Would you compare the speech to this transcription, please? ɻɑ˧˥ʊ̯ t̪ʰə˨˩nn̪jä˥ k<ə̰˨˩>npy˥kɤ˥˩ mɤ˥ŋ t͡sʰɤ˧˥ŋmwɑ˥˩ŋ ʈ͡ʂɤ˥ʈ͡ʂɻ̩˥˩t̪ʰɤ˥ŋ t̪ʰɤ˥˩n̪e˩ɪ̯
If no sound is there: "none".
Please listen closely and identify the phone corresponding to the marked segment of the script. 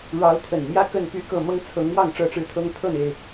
ə˥˩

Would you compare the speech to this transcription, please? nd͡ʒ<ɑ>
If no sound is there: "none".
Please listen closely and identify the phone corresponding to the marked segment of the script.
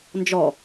ɔ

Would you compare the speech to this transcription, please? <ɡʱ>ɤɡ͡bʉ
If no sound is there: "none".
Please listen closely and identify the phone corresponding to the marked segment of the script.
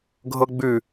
ɡʱ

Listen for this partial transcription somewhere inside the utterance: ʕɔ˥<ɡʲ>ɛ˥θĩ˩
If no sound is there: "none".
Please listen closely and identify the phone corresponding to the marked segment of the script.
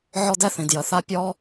d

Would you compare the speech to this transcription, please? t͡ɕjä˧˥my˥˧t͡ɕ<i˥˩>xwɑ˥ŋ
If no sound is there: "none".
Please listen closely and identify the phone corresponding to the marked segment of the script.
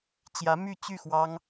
y˥˩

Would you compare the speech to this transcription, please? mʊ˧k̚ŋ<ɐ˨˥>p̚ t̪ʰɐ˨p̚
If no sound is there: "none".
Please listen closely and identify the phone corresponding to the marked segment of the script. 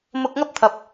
ɐ˥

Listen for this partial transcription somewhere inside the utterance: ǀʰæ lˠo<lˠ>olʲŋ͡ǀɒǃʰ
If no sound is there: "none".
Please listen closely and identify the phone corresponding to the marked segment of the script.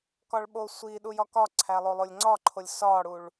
lˠ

